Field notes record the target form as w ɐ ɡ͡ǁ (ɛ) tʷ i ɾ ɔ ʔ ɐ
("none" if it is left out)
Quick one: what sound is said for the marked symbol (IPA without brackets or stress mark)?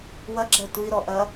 ɛ